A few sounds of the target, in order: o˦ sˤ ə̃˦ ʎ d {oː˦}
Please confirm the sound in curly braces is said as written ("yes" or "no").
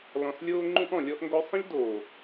no